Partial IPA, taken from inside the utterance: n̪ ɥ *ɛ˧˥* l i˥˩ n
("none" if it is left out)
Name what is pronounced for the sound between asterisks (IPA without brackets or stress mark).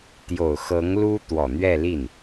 ɛ˥˧